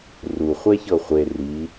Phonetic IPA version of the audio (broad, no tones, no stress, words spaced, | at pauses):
ru χʷɛçɤχʷe ri